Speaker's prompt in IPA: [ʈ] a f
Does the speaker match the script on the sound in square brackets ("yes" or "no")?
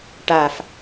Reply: yes